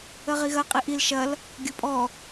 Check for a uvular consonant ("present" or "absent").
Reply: present